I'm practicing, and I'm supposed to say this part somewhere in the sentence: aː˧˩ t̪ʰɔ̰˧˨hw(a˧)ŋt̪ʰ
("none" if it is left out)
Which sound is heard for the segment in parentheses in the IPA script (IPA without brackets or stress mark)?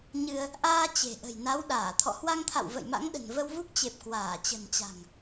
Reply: a˧